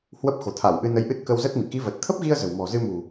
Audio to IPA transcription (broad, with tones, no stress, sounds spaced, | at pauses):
h w ə˦˥ p̚ x o̤˨˩ t̪ʰ a˧˩ w ʔ ɨ˧ n ə˨˦ j ʔ ɨ˦˥ t̚ k ə˧ w z ə˦˥ t̚ m ḭ˧˨ k i˨˦ v ə˨˩ t̚ t̪ʰ ə˦˥ p̚ ɣ i˧ ə̯ z ə̤˨˩ w m ɔ̤˨˩ z ɨ˧ m ṳ˨˩